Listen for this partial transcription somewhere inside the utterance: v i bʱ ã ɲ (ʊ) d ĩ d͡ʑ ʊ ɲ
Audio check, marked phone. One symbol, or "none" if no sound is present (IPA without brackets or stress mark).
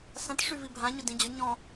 ʊ